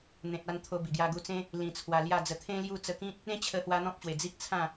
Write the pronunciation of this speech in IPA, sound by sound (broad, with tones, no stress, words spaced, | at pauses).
n̪ẽ˨t̚ a˧nt̪ʰo˧ bi˨˩ɡja˧ɡu˧t͡sẽ˦ | lĩ˨˩t͡sʰwa˨˩ lja˥˧d͡zə˧ t̪ʰẽ˦lju˥˧ t͡sə˧kĩ˦t̚ | ẽ˦t͡ɕʰə˧hwa˧ n̪ɔ̃˦p̚ɕwe˨˩ d͡zi˦k̚t͡sʰã˥˧